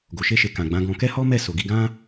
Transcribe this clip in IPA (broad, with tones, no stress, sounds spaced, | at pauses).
ɡ o˨ ʃ e˧ ʃ e˨ k ã˨ ɡ͡b ã˨˦ ɡ ɔ̃˧ k ɛ˦ h ɔ˦ m ɛ˦˨ s o˨ ɡ i˧ ɡ ã˦